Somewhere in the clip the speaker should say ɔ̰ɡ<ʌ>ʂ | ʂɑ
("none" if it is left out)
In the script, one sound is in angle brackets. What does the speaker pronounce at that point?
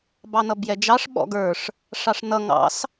ə˞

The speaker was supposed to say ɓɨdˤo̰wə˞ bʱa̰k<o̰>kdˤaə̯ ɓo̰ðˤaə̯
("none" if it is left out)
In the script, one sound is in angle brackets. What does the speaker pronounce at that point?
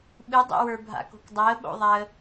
o̤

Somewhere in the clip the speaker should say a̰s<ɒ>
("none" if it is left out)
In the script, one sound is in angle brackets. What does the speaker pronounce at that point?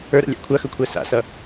ʌ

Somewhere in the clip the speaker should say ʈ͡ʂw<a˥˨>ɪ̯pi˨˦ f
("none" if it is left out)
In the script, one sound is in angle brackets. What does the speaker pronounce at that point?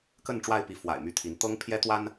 a˥˨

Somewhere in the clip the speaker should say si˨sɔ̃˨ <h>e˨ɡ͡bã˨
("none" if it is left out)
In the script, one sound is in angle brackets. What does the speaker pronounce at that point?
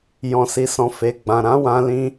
f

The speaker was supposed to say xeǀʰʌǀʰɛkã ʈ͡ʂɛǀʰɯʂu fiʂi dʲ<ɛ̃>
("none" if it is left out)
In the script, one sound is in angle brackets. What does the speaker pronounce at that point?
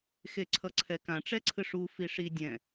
ɛ̃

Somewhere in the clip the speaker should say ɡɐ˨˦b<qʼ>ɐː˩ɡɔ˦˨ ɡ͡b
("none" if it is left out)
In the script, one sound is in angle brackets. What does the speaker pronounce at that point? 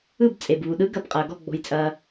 qʼ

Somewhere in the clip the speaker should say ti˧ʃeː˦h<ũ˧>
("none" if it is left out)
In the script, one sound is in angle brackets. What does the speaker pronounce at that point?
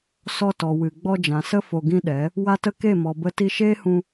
ũ˧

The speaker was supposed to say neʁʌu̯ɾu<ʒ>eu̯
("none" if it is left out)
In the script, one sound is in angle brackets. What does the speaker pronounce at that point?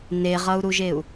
ʒ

